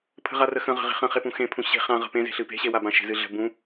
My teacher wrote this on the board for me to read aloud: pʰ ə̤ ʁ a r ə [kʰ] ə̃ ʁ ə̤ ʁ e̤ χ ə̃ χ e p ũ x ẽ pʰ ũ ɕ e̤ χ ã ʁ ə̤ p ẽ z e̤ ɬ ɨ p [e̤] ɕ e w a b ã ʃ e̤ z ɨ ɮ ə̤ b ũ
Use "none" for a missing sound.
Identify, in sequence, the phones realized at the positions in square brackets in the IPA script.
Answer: x, e̤

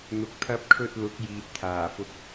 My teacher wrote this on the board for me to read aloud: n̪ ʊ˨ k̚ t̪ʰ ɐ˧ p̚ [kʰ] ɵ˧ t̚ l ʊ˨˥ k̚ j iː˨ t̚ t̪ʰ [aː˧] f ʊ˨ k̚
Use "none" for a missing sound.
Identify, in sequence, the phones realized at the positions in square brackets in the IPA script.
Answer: kʰ, aː˨˩

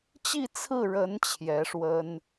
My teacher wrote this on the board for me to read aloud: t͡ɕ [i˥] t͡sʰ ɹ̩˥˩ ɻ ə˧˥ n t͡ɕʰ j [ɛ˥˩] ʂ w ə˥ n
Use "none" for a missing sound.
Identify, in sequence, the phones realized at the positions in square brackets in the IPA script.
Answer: i˥˧, ɛ˧˥

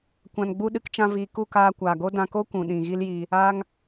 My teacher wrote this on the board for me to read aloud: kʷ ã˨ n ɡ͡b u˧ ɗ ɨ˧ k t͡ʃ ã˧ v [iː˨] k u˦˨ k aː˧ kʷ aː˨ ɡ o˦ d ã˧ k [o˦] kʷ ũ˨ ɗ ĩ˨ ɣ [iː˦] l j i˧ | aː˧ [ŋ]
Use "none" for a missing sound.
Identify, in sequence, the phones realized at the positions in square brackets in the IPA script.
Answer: iː˨, o˦, i˦, ŋ

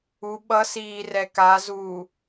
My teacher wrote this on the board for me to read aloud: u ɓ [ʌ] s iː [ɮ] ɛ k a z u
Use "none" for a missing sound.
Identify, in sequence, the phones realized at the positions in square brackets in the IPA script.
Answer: ʌ, r

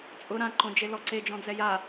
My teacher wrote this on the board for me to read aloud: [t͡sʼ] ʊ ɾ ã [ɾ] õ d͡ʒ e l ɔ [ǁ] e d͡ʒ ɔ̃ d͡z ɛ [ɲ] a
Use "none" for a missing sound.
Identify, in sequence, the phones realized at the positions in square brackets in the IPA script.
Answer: t͡sʼ, ǃ, ǀ, j

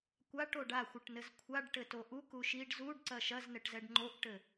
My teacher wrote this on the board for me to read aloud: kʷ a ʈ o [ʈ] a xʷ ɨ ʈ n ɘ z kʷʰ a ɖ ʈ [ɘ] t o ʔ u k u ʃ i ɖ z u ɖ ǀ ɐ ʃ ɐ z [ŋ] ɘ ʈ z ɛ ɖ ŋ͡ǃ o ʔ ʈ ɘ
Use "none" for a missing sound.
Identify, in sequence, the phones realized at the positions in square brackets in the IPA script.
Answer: ɖ, ɘ, n

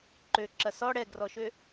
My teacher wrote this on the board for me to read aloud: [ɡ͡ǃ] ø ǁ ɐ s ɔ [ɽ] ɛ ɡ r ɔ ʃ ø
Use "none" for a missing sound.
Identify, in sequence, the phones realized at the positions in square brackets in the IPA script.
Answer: ǃ, ɽ

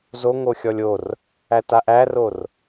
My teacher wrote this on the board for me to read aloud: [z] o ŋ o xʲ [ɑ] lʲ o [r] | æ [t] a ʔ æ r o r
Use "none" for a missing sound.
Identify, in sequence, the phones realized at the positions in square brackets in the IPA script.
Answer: z, ɔ, r, t

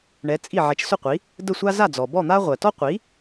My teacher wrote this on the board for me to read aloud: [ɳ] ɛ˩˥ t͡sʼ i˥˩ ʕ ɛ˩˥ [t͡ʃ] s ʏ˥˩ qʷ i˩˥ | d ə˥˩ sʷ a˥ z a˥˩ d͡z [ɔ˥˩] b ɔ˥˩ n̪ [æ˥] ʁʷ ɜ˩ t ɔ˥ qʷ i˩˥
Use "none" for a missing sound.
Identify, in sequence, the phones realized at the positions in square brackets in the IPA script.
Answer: ɳ, t͡ʃ, ɔ˩, a˥

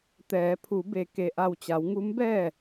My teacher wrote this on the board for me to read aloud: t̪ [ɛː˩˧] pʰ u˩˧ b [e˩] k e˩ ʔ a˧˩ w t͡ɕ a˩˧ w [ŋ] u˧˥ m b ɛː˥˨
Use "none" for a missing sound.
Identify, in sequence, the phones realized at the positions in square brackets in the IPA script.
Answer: ɛː˩˧, e˩, ŋ

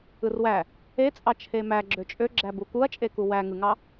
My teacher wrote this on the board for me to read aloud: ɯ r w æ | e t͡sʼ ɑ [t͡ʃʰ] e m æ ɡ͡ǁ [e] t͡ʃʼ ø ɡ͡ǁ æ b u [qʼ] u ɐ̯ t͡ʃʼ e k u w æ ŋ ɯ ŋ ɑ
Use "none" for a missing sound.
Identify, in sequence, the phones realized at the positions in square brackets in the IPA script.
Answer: t͡ʃʰ, ø, k

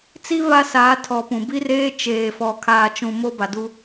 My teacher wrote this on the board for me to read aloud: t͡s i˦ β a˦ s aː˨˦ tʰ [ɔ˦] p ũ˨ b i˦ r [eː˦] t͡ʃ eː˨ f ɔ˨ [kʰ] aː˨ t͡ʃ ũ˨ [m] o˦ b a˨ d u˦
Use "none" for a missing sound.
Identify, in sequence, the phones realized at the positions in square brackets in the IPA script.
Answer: ɔ˨, eː˦, kʰ, m

